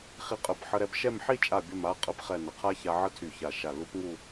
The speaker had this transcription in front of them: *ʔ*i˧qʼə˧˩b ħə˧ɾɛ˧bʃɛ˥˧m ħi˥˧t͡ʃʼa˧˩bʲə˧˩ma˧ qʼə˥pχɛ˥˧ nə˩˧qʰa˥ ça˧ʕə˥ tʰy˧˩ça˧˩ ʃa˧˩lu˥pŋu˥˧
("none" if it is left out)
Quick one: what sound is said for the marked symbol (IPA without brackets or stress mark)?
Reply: χ